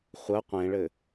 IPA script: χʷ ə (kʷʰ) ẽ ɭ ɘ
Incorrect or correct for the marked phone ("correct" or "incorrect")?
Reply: incorrect